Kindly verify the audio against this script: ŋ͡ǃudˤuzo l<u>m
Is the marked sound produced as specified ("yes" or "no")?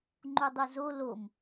no